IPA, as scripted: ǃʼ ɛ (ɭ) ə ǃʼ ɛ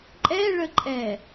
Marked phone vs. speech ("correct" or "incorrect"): correct